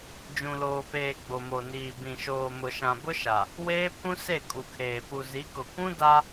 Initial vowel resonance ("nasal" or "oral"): nasal